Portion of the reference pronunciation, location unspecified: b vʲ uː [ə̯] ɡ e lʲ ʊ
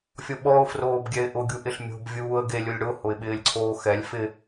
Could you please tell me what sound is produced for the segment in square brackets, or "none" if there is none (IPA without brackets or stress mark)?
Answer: ə̯